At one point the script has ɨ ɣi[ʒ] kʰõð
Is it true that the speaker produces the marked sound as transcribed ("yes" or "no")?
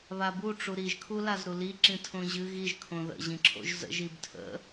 yes